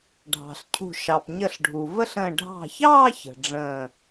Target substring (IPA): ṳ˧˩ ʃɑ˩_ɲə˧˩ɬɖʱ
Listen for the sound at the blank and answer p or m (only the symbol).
p